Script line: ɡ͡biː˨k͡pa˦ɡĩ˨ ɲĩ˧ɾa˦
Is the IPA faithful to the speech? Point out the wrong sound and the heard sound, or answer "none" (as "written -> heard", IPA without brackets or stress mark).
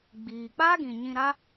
none